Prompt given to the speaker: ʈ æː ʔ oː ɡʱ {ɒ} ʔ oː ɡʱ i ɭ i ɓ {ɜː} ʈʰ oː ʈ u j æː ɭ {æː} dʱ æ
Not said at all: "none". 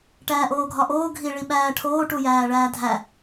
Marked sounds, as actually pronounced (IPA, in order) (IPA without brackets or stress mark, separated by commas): ɒ, æː, æː